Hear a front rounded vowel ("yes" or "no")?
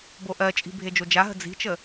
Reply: no